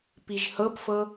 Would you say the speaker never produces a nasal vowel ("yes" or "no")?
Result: yes